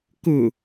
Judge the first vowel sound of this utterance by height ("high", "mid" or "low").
high